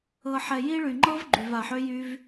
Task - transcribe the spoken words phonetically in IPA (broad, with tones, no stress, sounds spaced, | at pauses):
ɤ˨ ħ ɛ˨ j i˦ ɭ y˨ ŋ͡ǃ ɤ˦ v ɡ͡ǃ y˨ v a˨ ħ ø˦ j y˧ v